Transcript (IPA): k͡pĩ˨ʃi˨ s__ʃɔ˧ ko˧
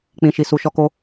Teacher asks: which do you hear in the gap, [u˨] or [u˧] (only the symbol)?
u˨